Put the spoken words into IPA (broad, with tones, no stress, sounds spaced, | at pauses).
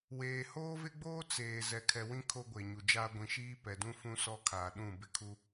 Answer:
w eː˨ h oː˦ v ɪ˦ ɡ͡b oː˦ t͡s eː˨ z ɛ˨ kʰ ɛ˨ w ĩ˦ kʰ o˦ ɡʷ e˨ ɲ u˨ d͡ʒ aː˦ ɡʷ ĩ˨ ʃ iː˦ p ɛ˨ d ũ˦ f ũ˦ s ɔ˦ kʰ aː˨ ɗ ũ˦˨ b ɪ˦ kʰ u˦